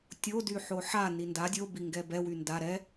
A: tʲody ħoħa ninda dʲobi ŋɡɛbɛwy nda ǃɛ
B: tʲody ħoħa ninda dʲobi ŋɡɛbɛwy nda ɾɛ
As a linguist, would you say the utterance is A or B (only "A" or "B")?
B